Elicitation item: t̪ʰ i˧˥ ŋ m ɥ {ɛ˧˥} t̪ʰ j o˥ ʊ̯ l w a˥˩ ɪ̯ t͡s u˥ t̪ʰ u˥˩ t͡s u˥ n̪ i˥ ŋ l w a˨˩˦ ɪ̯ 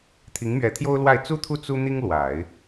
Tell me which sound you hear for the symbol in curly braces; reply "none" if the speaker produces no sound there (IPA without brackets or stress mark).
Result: ɛ˧˥